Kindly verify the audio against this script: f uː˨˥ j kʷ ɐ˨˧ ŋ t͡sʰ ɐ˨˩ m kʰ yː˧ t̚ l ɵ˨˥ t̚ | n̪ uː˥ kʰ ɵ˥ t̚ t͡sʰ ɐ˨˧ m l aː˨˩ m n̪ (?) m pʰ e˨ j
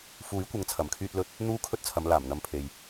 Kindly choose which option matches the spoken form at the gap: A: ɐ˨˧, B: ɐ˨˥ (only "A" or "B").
A